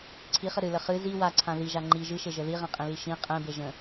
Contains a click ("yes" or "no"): yes